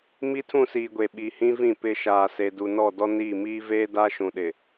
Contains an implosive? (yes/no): yes